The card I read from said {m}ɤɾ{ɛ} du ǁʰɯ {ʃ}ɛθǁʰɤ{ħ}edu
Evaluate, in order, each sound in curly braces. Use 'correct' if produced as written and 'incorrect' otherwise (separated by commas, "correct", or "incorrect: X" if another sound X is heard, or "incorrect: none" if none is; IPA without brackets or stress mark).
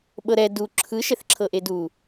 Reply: incorrect: ɓ, correct, correct, incorrect: ʔ